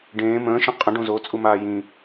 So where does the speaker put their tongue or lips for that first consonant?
retroflex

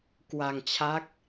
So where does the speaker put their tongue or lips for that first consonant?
velum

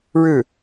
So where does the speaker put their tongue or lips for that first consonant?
retroflex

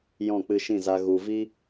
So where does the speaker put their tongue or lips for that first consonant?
palate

